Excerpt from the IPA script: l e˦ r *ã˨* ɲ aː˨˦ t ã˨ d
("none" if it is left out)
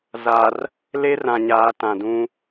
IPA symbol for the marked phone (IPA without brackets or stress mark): ã˨